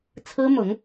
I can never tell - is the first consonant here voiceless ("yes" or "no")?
yes